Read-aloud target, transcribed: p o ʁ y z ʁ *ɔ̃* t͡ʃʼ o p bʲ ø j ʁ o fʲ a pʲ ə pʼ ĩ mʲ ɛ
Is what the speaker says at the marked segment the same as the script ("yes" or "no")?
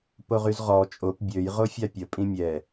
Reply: no